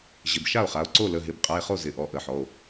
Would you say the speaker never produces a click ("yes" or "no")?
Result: no